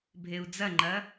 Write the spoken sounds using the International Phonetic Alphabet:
bʱ e u̯ d͡z ɐ ŋ͡ǃ ɐ

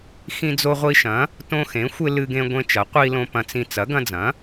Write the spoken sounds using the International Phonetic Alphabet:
x ĩ˦ d͡z o˦ ʁʷ i˦ ʃ ɐ̃˨˥ | t õ˦ x ẽ˨˥ xʷ ɪ˦ l ɨ˦ ɡ ẽ˦ ɡʷ ẽ˦ t͡ʃ ɐ˨˥ qʷ i˦ l õ˦ p ɐ̃˦ t͡s ĩ˦ t͡s ɐ˨˥ ɡ ɐ̃˦ d͡z ɐ̃˨˥

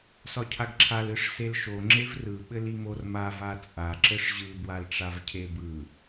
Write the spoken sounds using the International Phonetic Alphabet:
s ɒ cʰ a ɡ ǁʰ a l ɯ ʂ s e l ʃ o ŋ͡ǁ e v r ɯ ɓ ɘ l i m o r m a v a t͡sʼ a ǁ ɘ ʂ ʑ ɯ b w a l ʈ͡ʂ a v cʰ e b ɯ

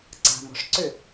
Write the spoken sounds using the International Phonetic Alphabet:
ǀ a̤ m ɔ̤ ʂ ǀ ʏ

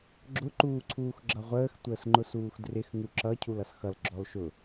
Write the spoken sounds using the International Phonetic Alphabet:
ɡ͡ǁ ʊ ǃ uː ǀʰ uː x ɡ͡ǁ ʌ ʁʷ əː x tʷ əː s ŋ͡ǃ ʊ s uː x d r ɪ x ŋ u ǁ ʌ cʰ u l ʌ s x ʌ l ɡ͡ǁ ɔ l ʃ ʊ

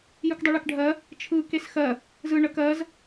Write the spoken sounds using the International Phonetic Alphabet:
j ɯ k dˤ u ɭ e k ɖʱ ɜ | t͡ʃʰ ɯ k e s x ɜ | z ɯ ɳ ə k ɜ z

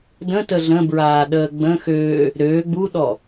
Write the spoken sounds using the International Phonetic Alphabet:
d ə̃ t ə ɮ ə̃ b ɹ aː ɗ əː ɡ͡b ə̃ x øː | ɾ øː ɡ͡b u ɗ ɔ

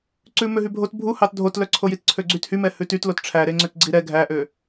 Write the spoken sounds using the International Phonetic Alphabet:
ǀ ʉ m ø ɦ y bʱ o t bʱ u h ɑ t dʱ o t l œ ǀʰ o j i t ǀʰ ø ɡ͡ǀ y t h y m ɛ h ʉ t y t l o t ʈ͡ʂʰ æ ɾ e ŋ͡ǀ ø t ɡ͡ǀ i ɾ ɛ ɡʱ æ ʔ ø

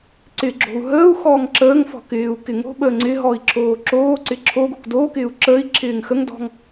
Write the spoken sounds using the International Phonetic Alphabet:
ǀ ɪ ɡ͡ǁ o̤ u̯ ɦ əː u̯ x ɔː ŋ ǁ əː ŋ f ɔ̤ k ɪː u̯ k ɪ ŋ o̤ ɓ əː ŋ͡ǀ ɪ ɦ ɔ i̯ ǁʰ oː ǁ oː ǀ ɪ ǁʰ o ɡ o̤ k d oː k ɪː u̯ ǁ əː i̯ ǁʰ ɪː ŋ x ə ŋ d ɔ̤ ŋ

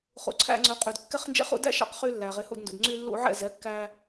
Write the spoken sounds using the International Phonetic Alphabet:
χ ṵ˩ ǀʰ æ̰˧ ŋ͡ǀ ɵ˩˥ qʼ y˩ d kː ɛ˧ χ n d͡ʒ ɛ̰˧ χ ṵ˧ d æ̰˥ ʃ ɑ̰˧ q χ y˧ lː æ˩ ʁ e˩˥ h ṵ˥˩ d n d ṵ˩ d ŋ͡ǀ y˧ lː ṵ˧ ʕ ɛ̰˥˩ z ɛ˩˥ kː æ˧

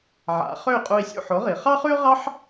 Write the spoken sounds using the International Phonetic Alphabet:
ʕ a̰˩˥ χ ø˥˩ y̯ qʼ u˧ i̯ sʲ ṵ˥˩ ħ o˩˥ ʁ i˩ χ ɑ˥ χ ʉ˥ ʁ ɑ˥ ħ

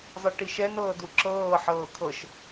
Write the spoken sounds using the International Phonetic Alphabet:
zˤ ɨ ʈ i ʃ ɛ n ɤː d u ǁ ɤː ħ ɤː kʰ ɤ ʃ

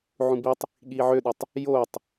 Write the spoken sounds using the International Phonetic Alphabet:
ʕ ũ b i tˤ | ɠ iː ʕ ø ɗ u tˤ | j oː tˤ

